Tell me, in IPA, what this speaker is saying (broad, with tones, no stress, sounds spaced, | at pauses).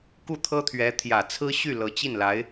k u˥˩ t̪ʰ ɤ˥ t̪ʰ ɥ ɛ˧˥ t̪ʰ j ä˨˩ t͡sʰ ɹ̩˥ ɕ y˥˩ l ɤ˧˥ t͡ɕ i˥˩ n l a˧˥ ɪ̯